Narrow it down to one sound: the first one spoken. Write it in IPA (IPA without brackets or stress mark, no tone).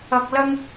ɐ